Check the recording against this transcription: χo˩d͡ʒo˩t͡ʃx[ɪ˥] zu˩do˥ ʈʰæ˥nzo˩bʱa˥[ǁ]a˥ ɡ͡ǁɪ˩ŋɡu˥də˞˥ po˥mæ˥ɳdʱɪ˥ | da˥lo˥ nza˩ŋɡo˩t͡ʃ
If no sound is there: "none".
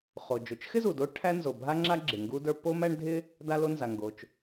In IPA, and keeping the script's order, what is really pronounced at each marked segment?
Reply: ɪ˥, ŋ͡ǁ

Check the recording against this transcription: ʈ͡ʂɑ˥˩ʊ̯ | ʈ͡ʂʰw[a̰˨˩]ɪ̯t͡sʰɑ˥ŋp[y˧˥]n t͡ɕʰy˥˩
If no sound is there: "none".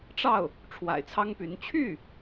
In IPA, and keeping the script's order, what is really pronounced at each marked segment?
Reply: a̰˨˩, y˧˥

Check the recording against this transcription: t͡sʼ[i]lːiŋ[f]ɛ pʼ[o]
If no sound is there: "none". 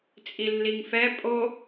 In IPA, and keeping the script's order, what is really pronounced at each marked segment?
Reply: i, f, o

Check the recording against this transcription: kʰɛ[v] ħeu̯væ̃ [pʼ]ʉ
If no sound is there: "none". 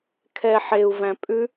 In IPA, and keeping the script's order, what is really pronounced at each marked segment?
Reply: none, pʼ

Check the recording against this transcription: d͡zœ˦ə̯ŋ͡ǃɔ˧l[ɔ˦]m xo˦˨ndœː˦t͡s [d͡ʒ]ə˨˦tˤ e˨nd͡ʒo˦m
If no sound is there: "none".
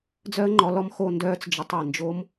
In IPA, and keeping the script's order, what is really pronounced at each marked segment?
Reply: ɔ˦, d͡ʒ

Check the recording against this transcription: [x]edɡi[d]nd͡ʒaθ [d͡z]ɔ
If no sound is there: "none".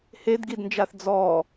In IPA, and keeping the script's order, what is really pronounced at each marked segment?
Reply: h, d, d͡z

